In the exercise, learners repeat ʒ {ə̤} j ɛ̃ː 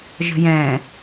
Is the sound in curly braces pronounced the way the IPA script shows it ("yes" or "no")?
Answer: yes